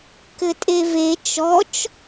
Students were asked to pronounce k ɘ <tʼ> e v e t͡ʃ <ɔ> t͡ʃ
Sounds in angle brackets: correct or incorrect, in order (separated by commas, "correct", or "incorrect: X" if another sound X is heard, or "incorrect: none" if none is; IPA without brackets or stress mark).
correct, correct